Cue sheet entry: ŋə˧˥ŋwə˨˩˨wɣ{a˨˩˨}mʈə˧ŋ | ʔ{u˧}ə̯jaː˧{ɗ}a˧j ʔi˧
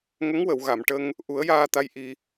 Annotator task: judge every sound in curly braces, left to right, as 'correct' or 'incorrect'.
correct, incorrect: u˨˩˦, incorrect: t̪

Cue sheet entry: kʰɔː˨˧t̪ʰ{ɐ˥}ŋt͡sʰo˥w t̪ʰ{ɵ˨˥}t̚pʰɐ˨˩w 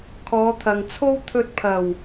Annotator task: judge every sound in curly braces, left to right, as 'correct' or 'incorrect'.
incorrect: ɐ˨, incorrect: ɵ˧

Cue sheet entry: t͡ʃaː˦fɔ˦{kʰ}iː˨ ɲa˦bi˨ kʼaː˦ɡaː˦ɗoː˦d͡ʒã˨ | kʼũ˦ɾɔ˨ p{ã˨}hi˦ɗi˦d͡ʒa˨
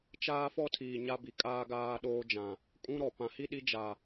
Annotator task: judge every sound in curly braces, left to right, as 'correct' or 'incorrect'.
incorrect: tʰ, correct

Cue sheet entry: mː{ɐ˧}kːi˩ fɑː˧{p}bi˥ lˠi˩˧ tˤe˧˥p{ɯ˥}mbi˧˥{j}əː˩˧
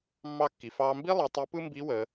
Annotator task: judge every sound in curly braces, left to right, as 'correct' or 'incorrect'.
incorrect: ɑ˧, incorrect: m, correct, incorrect: w

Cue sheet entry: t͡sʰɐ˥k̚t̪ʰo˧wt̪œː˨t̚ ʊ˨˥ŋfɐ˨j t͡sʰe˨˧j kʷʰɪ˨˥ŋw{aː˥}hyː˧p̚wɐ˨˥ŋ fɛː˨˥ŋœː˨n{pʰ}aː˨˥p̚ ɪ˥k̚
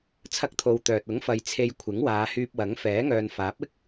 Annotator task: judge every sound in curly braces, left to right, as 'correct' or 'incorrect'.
incorrect: aː˨˧, incorrect: f

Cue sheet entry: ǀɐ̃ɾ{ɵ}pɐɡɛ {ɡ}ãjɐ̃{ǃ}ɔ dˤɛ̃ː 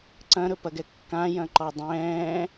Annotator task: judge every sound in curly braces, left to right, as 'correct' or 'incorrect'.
correct, incorrect: kː, correct

